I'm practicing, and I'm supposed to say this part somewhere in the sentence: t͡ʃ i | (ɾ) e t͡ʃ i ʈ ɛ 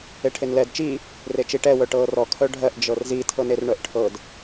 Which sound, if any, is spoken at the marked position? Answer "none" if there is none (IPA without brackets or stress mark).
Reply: r